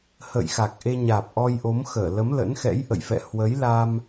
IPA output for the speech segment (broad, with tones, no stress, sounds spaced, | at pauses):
h ə̰ː˧˨ j x a˨˩ k̚ ʔ e˧ ɲ aː˨˩ p̚ ʔ ɔ˧ j ʔ o˨˦ m x əː˧˩ l ə˨˦ m l ə̰˧˥ n x ɛ̰˧˥ j ʔ ə̰˧˨ j f ɛ̰˧˨ h w ə˨˦ j l a˧ m